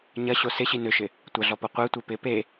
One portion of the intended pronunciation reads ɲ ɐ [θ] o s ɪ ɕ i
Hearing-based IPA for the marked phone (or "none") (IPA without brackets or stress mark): ɕ